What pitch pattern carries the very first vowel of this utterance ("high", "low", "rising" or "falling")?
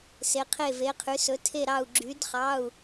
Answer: rising